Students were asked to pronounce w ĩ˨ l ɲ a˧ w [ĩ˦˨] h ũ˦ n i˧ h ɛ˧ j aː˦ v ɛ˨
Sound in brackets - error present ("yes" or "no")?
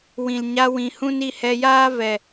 yes